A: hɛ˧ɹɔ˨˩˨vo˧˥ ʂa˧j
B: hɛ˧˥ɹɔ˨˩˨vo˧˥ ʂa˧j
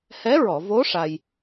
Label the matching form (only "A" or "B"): B